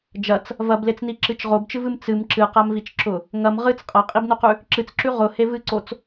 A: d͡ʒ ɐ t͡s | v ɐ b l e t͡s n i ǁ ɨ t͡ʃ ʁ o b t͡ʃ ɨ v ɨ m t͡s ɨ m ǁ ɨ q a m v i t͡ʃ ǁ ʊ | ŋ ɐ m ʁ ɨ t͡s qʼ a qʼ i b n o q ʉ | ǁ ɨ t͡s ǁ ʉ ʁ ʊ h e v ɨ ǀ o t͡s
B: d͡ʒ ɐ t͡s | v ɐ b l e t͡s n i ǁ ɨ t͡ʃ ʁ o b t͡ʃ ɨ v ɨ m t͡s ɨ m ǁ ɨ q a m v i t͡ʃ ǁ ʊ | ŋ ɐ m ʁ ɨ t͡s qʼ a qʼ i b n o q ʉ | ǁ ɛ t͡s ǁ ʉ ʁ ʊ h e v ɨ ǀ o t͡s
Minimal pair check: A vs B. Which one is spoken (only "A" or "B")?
A